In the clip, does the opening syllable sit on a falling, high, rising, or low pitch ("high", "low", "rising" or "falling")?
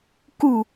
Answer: falling